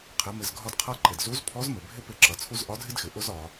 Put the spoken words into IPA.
qʰɪ˩˧ mɪ˩zɡʱɒ˧dqʰʌ˧˥ ǃɪ˩dzu˧˥zpʰɔ˧˥z mɪ˩bʱɪ˥ pɪ˧ ǁʌ˩˧t͡sʰu˥z ʔɒ˧˥dʱɪ˥dxɪ˩ ʔʊ˥zɒ˩˧

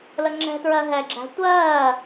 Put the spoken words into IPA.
ləŋ͡ǁɛ̤tɹɜ ɦɛɡ͡ǁæ̤ tʷɜː

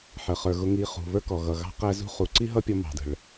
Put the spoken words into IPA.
ħə˨ χə˞˨ɣʊ˧ŋi˧ χṳ˨βə˞˦kɔ˨ɣʌ˨ ɣɑ̤˦qæ˦zṳ˦ χu˨ǀi˦ɦʌ˦pʲɔ˧ mɑ̤˨də̤˨ɭ

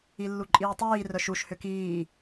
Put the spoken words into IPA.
ilːuǃʼiːtˤiː rœʃuʃ hʏkiː

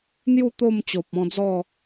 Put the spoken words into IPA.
n̪ju˥˧ t̪o˥˧mt͡ɕo˨p̚ɔ̃˧d͡zɔ˥˧

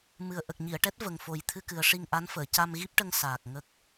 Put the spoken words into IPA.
mɨ˨˩ə̯ʔə˨˩k̚ɲi˨˩˨ə̯ʈɛ˦˥t̚ və˨˩ŋfo˨˩j t̪ʰɨ˧kɨ˨˩ə̯ ʂi˧ŋʔa˧˥nfəː˨˩˨ ca˧mɣi˦˥p̚ʈə˧ŋ saː˨˩k̚ŋə˦˥k̚

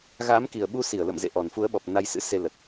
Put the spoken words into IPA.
ɣaː˨˦m ki˨˩ə̯ɓu˧si˧˩ə̯ lə̰˧˨mzḛ˧˨ʔɔ˨˩n fu˨˦ə̯ɓɔ˨˩p̚ na˧jsɨ̰˧˥ se˧lə˨˩t̚

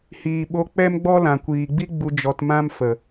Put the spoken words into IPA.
hiː˨ɓo˧ k͡pɛ˦mɡ͡bɔ˦lã˨ kʷiː˨ɡ͡bi˦ ɡ͡bu˧ d͡ʒɔ˧tmã˦m fə˨

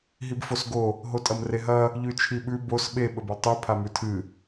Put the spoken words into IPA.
ɦibfosɡo | ɦotʼɐmreɦɐ | ʎʉt͡ʃʰiɓʉ bos ɓe ɓɵbulˠtˤʉ pʰamʉtʰɨ

